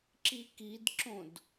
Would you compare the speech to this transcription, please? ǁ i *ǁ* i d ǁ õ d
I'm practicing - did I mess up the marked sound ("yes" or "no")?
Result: yes